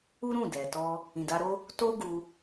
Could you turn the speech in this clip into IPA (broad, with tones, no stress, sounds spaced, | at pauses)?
u˦ ɾ ũ˦˨ d ɛ˨ t ɔ˧ | ĩ˨ d a˧ ɾ o˦ | t o˦ ɡ u˧